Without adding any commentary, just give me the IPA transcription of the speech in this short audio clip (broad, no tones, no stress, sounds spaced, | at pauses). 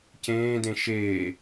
c ẽː d ẽ ʃ eː